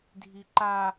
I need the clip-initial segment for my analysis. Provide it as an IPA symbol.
dʱ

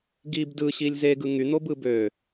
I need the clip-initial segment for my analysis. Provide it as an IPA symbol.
ɡ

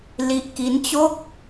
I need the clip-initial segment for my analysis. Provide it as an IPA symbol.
l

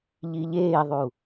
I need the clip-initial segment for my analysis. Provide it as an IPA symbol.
ʎ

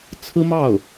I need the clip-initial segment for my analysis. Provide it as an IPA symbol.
t͡sʰ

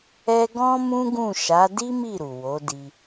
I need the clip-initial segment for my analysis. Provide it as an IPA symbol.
ɛ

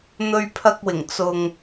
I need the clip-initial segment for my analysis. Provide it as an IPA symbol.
n̪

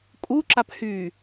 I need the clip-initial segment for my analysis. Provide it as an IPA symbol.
kʼ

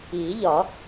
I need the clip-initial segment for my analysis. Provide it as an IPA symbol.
iː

